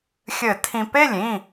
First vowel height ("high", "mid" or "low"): mid